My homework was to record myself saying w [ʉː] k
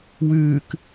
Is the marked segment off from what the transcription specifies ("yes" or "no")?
no